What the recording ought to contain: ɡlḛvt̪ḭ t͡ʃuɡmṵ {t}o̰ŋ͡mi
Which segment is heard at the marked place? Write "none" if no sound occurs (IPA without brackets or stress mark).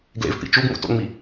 t